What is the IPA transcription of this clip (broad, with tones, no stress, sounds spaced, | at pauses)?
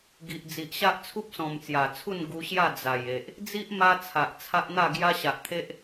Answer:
ɡ i˨ ʔ d͡z i˨ ʔ ɕ a˦ ʔ t͡sʰ u˦ p̚ s ɔ̃˨˩ m t͡s j a˨˩ t͡sʰ u˥˧ n ɡ u˧ ɕ j a˥˧ d͡z a˨˩ j e˨ ʔ | d͡z i˦ ʔ m a˧ t͡sʰ a˨ ʔ t͡sʰ a˦ ʔ n̪ a˥˧ ɡ j a˦ ɕ a˨ ʔ t̪ʰ e˦ ʔ